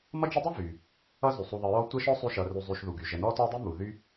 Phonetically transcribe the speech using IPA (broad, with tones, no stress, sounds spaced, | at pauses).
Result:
m ʌ˦ d͡ʒ ə˦ dˤ ɘ˥ v y˩ | ʌ˦ z y˩ sˤ u˨ ðˤ ə˨ ɹ ɔ˦ tʷ ə˥ ʃ ɔ˥ sˤ y˦ ʃ ʌ˨ r y˨ zˤ y˨ ʃ ð u˩ ɡ y˩ ʒ ə˨ n ɔ˥ t ɔ˥ dˤ y˥ m u˨ ð y˦